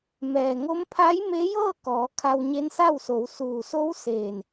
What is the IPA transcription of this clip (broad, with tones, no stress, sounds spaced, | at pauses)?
m ɛː˩ ŋ o˧˥ m pʰ a˧˥ j m e˧˥ j ɤː˥˨ k ɔː˩˧ kʰ a˧ w ɲ e˧˥ n s a˥˨ w s o˩˧ w s uː˩ s o˧˥ w s eː˧˩ n